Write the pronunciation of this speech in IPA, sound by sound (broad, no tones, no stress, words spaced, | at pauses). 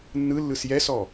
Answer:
nːɯlːɯs jɛsɔ